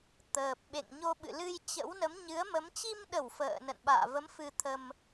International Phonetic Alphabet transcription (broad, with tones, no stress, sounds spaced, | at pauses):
t̪ əː˨˩ p̚ ɓ ḛ˧˨ ŋ ɲ o˧ ɓ ɨ̰˧˨ l ɨ˧ j t͡ɕ ə̰˧˥ w n ə˨˦ m ɲ ɨ˨˦ ə̯ m ə˨˦ m t͡ɕ i˧ m ɗ ə˧˩ w f ə̰ː˧˨ n ə̰˧˨ n ɓ a̰ː˧˨ v ə˨˦ m f ɨ˧ t̪ʰ ə˧ m